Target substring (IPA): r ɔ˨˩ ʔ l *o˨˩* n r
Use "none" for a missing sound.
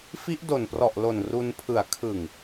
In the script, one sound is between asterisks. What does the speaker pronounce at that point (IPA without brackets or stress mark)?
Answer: o˨˩